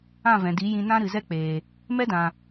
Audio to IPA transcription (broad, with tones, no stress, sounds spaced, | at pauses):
ã˦˨ v ɛ̃˨ d i˨˦ j ĩ˧ n ã˦ ɾ ɨ˨ z ɛ˦ k͡p eː˨ | m ɛ˦ d ã˨